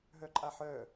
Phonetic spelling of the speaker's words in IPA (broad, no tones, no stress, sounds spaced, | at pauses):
ɦ œ ǃʼ a ħ œ